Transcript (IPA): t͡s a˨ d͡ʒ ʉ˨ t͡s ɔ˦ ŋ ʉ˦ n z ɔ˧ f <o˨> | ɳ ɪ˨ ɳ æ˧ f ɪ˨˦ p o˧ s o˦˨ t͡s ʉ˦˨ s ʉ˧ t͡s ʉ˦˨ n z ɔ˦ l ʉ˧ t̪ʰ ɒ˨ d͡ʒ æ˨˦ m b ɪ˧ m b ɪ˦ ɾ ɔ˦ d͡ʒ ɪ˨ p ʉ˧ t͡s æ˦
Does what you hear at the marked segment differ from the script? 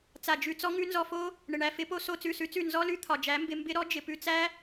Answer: yes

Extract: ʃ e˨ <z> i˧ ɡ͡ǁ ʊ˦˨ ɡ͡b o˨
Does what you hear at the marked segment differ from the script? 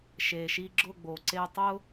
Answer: yes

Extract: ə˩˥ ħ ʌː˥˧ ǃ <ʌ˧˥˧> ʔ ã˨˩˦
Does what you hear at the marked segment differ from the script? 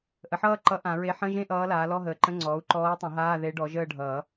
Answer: yes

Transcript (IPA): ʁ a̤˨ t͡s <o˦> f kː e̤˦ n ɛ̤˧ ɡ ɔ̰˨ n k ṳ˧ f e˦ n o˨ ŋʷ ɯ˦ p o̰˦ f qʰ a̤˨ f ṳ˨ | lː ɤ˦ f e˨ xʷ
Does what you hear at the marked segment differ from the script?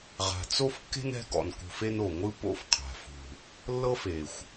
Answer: no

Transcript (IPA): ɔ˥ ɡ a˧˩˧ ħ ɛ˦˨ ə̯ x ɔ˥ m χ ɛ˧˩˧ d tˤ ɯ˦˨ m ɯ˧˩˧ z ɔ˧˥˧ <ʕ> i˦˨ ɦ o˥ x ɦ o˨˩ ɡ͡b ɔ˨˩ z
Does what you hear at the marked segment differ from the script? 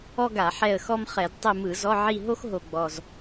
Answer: no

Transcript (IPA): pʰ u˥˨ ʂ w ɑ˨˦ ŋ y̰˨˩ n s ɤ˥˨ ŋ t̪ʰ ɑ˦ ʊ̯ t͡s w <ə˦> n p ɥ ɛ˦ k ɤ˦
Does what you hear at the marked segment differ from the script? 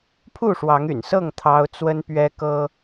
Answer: no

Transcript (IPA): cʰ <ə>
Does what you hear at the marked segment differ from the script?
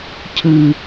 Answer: yes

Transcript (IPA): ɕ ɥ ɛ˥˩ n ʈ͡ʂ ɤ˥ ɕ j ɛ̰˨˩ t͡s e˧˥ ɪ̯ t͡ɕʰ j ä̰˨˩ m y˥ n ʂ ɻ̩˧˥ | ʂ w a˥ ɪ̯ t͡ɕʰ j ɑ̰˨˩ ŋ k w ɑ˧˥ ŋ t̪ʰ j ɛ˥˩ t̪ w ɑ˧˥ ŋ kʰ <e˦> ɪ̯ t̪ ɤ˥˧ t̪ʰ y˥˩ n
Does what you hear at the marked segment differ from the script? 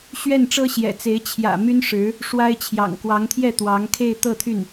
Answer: yes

